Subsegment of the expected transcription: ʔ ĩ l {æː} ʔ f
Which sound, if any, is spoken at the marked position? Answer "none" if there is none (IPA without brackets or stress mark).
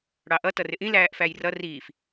æː